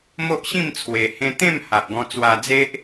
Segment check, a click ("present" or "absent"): absent